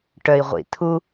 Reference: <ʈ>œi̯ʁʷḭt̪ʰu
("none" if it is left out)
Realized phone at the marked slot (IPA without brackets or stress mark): ʈ